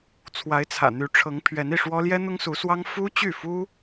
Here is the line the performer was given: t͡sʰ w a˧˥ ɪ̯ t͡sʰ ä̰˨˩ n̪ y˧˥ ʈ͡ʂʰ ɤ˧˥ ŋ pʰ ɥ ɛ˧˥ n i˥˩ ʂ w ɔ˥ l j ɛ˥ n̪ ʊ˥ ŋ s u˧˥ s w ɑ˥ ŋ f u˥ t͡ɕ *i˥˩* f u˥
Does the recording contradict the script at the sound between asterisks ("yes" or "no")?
yes